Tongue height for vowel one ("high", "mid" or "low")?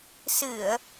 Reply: high